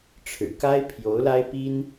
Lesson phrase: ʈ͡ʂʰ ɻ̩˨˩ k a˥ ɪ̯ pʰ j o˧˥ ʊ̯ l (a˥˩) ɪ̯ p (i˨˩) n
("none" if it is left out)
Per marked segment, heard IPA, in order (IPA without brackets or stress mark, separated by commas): a˥, i˥